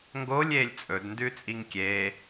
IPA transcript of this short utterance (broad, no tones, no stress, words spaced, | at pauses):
ŋɡolʲ eːlʲt͡sʼɵd ndʉt͡sʼiŋkʲeː